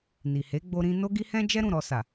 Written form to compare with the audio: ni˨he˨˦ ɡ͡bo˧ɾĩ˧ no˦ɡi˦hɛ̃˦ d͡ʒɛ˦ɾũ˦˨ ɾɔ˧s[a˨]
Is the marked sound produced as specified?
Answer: yes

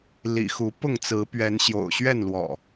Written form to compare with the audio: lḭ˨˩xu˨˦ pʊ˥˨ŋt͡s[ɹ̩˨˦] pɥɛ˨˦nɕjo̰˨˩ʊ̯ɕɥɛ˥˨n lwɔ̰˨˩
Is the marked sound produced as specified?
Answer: yes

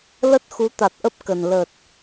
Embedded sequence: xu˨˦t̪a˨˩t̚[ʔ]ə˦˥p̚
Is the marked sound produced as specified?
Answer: yes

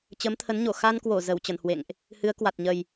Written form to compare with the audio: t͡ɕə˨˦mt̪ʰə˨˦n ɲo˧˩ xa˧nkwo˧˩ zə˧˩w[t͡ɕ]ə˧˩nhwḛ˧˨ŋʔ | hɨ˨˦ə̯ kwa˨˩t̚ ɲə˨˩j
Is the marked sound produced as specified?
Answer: yes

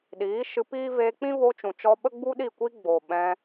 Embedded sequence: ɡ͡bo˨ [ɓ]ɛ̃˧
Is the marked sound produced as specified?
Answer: yes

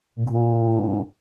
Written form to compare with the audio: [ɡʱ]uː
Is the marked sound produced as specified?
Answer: yes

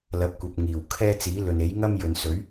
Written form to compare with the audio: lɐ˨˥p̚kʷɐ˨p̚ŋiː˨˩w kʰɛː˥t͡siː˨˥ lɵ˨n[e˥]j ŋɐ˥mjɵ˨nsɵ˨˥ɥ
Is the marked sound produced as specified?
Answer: no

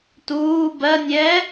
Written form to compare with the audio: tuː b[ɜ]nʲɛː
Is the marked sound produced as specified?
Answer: yes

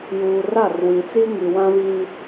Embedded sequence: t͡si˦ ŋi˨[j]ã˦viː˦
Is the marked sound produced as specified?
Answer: no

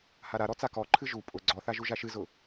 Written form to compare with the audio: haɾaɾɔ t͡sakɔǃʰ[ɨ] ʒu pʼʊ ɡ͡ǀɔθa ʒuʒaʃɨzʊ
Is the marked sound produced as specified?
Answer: yes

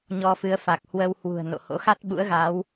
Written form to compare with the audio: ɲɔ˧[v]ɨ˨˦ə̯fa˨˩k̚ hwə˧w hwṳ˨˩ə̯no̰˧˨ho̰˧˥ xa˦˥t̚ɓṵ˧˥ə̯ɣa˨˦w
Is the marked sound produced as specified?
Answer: no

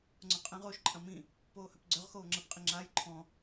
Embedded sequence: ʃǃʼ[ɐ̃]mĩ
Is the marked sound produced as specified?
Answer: yes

